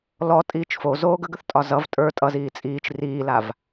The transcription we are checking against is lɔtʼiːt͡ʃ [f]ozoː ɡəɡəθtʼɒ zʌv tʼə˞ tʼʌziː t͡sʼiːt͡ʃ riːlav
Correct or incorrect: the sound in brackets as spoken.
correct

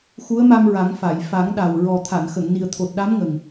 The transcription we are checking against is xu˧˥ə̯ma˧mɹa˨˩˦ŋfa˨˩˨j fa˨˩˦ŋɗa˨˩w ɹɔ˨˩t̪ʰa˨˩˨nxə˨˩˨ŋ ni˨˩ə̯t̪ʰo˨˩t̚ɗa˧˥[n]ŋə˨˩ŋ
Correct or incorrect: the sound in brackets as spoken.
incorrect: m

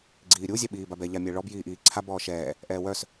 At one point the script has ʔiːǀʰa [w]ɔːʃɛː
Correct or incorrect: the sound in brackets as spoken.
incorrect: b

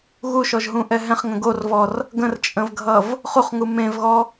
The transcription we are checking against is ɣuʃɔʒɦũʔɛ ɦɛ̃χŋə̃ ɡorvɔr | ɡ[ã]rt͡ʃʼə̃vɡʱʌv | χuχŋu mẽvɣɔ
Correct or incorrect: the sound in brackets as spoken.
incorrect: ə̃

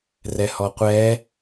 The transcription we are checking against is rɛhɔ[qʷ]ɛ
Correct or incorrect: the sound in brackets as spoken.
correct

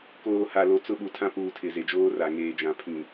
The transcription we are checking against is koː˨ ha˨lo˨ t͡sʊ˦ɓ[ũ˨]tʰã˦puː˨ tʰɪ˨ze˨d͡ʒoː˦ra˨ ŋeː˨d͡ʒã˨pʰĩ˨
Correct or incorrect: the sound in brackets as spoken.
incorrect: u˨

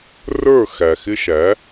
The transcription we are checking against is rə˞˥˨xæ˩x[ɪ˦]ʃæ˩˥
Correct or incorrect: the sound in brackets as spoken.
correct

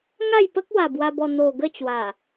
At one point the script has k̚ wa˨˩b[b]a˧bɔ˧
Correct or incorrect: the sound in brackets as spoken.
incorrect: w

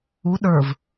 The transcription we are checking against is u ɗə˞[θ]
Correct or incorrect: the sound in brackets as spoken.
incorrect: v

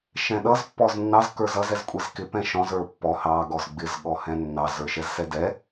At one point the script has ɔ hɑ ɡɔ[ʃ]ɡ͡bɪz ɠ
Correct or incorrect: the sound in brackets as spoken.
incorrect: z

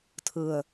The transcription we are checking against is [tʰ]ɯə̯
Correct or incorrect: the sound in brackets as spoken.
correct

